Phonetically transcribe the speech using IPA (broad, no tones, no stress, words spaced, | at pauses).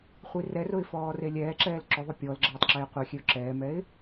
χʷirɛrʊɪ̯ fɔːrelʲɛːǁɛːl ǁʊðˤʊ pʲɔl ɡ͡ǁeːtˤǁeːqʷɛxʲeʊ̯ ǁɛːmɛɪ̯